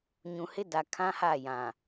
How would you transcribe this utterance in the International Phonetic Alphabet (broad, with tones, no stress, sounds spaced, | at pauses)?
ɲ ũ˨ h ɪ˦ d a˨ kʰ ã˦ h a˦˨ j ã˨